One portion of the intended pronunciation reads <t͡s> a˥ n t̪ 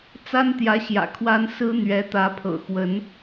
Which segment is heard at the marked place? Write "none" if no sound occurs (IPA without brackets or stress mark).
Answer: t͡s